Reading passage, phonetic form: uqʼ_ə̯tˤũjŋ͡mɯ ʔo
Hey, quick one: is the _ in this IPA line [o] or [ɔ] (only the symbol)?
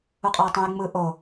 ɔ